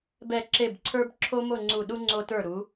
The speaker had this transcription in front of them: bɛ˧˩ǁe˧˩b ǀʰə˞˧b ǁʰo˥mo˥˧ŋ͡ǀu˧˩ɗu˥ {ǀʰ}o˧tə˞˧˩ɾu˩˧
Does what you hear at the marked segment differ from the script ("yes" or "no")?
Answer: yes